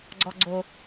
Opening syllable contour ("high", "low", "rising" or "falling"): low